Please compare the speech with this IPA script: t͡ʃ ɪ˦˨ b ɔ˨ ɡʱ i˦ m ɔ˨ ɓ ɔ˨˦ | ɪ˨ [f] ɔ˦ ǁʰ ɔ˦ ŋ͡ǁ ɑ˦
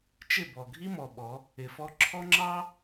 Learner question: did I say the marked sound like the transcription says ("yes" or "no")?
yes